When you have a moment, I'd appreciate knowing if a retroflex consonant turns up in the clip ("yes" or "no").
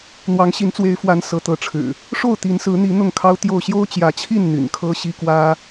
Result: yes